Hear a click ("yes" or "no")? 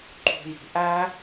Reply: yes